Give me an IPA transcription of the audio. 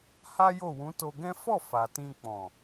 h a˦ j o˦˨ w ũ˨˦ t o˧ ɡ ɛ̃˦ f ɔ˦˨ f a˨ t ĩ˧ k͡p ɔ̃˨

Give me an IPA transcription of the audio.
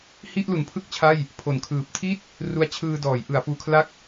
h i˥˩ ʔ l u˩˦ n pʰ ɯ˥˩ k̚ t͡ɕʰ a˥˩ j | pʰ o˩˦ n kʰ ɯː˨˩ p̚ tʰ i˥˩ t̚ | r u˦˥ a̯ t͡ɕʰ ɯː˧ d ɔː˩˦ j ʔ ɯ˩˦ a̯ f uː˧ kʰ l a˥˩ k̚

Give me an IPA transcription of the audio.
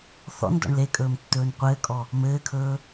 θ ɔ̰ n d ɔ̰ ɳ l e kʼ ɵː m tː ɵː n qʷ ɘː kʼ ɔ | m ɘː kʰ ɵː

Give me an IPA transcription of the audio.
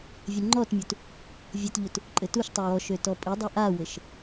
vʲ ɘ ŋ͡ǃ ɔ t mʲ u t | vʲ ɘ t ʎ u t | ǃʼ ɘ t u ʃ tˤ ø w ɔ ʃ ø t ɔ pʼ i dˤ ɘ ʔ a w ɘ ʃ

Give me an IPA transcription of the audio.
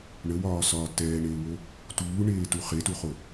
ɳ ə w ɒː s ɒː t ɛː ɳ eː w o | t uː ɳ eː t u χ e t u χ o

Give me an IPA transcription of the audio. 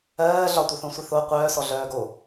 ɜː ɮ ɒ tʷ œ θ õ sʷ i θ o qʷ œː s ɔ ɮ œː ɡ o

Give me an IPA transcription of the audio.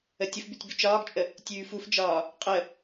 ə tʲ ə f b ʉ tʲ b ʉ t͡ʃ ɒː ɡ t͡ʃʼ ə | tʲ ʉː f u f d͡ʒ ɒː | qʼ ə

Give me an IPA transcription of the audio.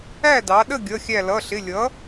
æ˥˨ d ɑ˩˧ ɗ ə˥˨ ɡʲ ʌ˩˧˩ xʲ æ˧˩ l ʌ˩˧˩ ɬ ɪ˩˧˩ lʲ ʌ˩˥

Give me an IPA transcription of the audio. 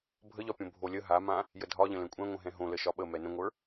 bʱ ə ʎ ɒ pʲ õ bʱ o lʲ ə ɦ a m ã | j ə dʱ ɒ ʎ ə̃ l ɛ̃ kʷʼ ɛ̃ ŋʷ ə̃ ɦ ɛ̃ ɦ õ l ə ʃ ɒ ɓ ə m ɛ n ə̃ ŋʷ ə˞

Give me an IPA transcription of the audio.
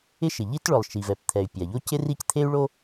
ɪ˥ ʃ ɪ˩ ʎ i˥ t ɭ ʊ˩ lˠ ʃ i˩ v ɛ˩ p t̪ʰ ɛ˩ y̯ pʲ a˩ ʎ o˥ c ɪ˥ r i˥ c t̪ʰ e˥ y̯ ɭ o˥

